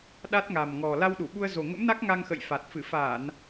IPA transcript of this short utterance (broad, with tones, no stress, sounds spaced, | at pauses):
ɗ a˦˥ t̚ ŋ a˨˩ m ŋ ɔ˨˩ l a˧ w ɗ u˧˩ ɓ u˧ ə̯ z o˨˩ ŋ ə̰˧˥ m n a˦˥ k̚ ŋ a˧ ŋ x ə̰˧˨ j f a˨˩ t̚ f ɨ˧˩ f aː˧˩˨ n